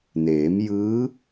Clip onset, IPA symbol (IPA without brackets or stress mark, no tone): n